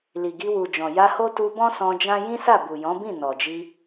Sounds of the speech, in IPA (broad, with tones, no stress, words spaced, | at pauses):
li˨ɡi˧wu˨d͡ʒɔ̃˨ ja˧ho˦tu˧bɔ̃˦ sɔ̃˧d͡ʒã˦ jĩ˦sa˦˨bu˨ jɔ̃˨˦bĩ˦˨ nɔ˨d͡ʒi˧